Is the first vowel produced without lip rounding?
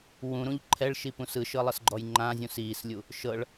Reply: no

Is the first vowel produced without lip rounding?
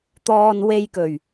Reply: no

